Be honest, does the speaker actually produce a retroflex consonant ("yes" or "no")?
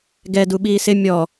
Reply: no